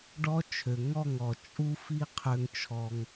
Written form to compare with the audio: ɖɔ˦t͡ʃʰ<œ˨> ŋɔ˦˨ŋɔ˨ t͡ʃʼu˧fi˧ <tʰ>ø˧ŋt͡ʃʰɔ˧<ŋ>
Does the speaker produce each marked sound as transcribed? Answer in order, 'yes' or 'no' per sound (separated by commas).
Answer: no, no, yes